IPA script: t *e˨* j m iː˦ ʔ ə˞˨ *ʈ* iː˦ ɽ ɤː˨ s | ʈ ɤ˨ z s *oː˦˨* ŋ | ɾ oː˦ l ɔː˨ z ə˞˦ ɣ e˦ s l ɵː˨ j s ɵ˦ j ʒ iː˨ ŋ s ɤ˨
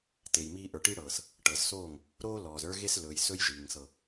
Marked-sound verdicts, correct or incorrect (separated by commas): correct, correct, correct